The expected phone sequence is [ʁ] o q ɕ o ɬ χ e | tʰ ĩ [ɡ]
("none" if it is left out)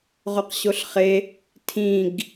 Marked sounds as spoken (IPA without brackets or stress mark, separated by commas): ʁ, ɡ